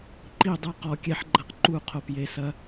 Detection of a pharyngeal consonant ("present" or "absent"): present